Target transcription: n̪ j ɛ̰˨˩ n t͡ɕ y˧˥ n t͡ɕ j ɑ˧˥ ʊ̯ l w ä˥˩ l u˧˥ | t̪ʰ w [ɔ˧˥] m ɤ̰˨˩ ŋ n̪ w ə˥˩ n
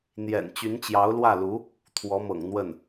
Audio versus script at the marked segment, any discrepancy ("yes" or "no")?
no